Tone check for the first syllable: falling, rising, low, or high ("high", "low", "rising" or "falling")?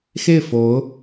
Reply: falling